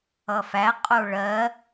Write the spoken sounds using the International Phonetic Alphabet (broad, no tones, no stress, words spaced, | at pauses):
ʌfæ qʼoɭɜ